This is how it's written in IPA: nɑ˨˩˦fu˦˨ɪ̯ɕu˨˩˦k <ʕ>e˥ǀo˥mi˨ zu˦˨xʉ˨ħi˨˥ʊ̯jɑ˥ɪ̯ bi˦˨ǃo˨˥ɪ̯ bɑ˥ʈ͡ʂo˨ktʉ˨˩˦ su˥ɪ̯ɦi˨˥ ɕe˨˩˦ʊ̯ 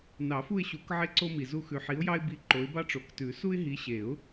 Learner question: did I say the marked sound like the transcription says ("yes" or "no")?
yes